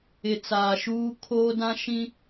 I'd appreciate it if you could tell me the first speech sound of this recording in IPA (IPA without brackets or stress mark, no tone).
ɪ